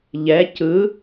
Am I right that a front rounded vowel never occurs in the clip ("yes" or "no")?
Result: yes